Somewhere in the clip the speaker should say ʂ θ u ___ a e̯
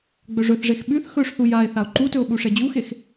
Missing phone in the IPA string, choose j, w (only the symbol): j